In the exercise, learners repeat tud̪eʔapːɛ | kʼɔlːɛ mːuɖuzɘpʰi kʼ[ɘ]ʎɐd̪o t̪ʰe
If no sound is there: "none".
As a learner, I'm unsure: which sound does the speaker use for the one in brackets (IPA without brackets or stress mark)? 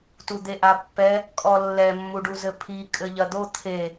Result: ɘ